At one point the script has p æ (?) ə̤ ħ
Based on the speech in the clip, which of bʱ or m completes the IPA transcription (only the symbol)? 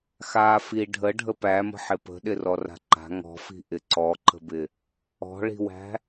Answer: m